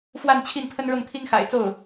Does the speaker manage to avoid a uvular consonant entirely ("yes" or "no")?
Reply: yes